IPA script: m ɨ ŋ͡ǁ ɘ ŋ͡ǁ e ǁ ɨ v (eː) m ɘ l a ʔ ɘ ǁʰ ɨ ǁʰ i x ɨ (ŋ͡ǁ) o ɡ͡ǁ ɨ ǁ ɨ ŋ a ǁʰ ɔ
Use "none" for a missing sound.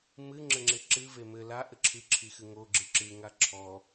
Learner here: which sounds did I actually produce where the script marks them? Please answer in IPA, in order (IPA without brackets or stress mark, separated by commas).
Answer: e, ŋ